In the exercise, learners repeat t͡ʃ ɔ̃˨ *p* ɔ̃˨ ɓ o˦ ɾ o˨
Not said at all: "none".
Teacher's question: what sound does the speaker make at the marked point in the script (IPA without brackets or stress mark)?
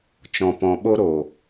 p